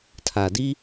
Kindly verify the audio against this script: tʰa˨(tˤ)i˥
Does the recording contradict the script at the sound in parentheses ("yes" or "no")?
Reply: yes